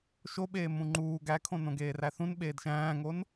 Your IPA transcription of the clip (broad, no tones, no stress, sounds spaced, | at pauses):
ʃ o ɓ eː m ũ ŋ͡ǃ uː ɡ æ kʰ õ n õ ɡ eː r æ θ ũ n ɓ eː d ʃ æ̃ː ŋ o n